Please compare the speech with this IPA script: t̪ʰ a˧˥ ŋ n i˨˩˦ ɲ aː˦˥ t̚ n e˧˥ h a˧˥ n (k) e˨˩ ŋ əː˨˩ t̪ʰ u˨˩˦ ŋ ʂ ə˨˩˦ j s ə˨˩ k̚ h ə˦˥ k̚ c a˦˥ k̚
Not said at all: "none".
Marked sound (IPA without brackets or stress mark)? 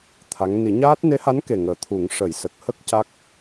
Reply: k